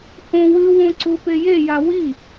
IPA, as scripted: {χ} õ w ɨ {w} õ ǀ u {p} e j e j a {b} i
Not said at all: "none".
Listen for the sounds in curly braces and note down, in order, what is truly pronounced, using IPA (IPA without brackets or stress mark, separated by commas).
h, w, p, w